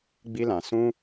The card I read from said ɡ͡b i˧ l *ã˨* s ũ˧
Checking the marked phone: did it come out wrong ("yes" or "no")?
no